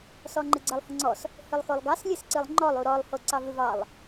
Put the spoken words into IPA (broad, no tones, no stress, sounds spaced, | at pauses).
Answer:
s ɔ ŋ͡ǃ ɨ ɡ͡ǀ ə lˠ h ə ŋ͡ǀ ɔ s | h ɨ lˠ x o lˠ ɡ ɑ s lʲ ɨ s ǀ ɨ lˠ ŋ͡ǃ ɔ lˠ u ɾ ɔ lˠ h o ǀ ɑ v ɨ v ɑ lˠ